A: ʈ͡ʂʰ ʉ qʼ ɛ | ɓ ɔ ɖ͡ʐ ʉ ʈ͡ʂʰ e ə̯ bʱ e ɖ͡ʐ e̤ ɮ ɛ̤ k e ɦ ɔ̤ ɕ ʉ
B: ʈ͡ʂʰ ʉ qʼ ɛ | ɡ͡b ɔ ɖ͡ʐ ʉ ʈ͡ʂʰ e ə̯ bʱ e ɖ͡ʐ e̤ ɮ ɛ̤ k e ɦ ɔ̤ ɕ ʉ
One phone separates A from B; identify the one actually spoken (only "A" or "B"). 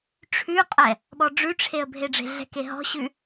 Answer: A